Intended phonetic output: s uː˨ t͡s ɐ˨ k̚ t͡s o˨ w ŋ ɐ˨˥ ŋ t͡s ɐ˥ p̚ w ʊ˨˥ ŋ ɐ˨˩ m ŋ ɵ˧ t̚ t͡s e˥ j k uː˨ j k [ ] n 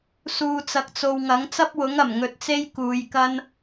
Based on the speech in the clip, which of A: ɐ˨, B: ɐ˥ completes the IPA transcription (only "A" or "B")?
B